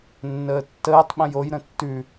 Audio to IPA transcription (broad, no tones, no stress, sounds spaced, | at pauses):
nː əː tː əː tˤ ɓ ə̃ j o j ɾ ə̃ tː ʉ